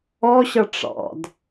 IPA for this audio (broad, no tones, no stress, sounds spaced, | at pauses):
ɔ ɕ ʌ ʈ͡ʂ ɑ̰ d